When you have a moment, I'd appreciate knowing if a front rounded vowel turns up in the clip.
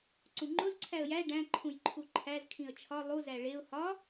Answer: no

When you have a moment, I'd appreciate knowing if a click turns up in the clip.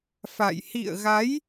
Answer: no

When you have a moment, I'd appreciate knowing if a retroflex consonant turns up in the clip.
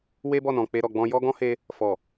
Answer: no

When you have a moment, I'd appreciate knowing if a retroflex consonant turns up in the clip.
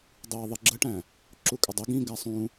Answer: yes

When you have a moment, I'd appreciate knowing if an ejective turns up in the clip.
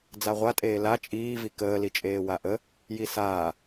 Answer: yes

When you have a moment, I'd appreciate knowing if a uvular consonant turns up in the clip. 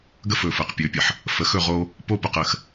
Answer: yes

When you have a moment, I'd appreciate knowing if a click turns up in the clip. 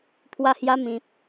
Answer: no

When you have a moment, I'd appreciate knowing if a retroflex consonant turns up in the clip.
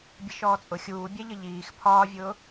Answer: no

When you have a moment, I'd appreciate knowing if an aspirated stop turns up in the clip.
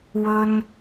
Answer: no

